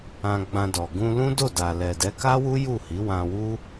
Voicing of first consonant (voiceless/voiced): voiced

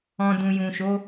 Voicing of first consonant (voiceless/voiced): voiced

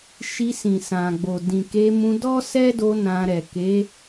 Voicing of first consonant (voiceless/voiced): voiceless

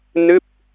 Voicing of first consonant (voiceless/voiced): voiced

